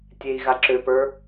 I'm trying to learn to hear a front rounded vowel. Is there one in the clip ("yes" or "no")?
yes